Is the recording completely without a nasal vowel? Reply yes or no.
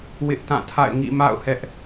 no